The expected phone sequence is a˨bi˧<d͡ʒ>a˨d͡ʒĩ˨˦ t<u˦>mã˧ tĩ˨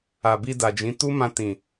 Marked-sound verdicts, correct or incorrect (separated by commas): incorrect, correct